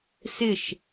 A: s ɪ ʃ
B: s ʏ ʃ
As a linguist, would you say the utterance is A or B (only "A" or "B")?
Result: A